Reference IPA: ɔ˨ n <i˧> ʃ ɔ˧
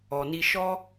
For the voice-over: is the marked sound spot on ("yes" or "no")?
yes